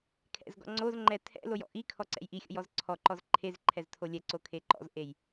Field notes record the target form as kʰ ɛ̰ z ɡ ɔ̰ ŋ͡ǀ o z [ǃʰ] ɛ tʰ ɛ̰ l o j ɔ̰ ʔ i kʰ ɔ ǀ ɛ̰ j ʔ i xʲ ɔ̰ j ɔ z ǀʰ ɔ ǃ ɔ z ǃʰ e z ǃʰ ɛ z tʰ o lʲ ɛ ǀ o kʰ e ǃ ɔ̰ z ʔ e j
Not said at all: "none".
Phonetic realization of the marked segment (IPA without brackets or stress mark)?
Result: ŋ͡ǃ